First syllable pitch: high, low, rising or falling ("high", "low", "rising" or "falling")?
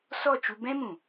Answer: falling